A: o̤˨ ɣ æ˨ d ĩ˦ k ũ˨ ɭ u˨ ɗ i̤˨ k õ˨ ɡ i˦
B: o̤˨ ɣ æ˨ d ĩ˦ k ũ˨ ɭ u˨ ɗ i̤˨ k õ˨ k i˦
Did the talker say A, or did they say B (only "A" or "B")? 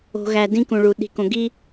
A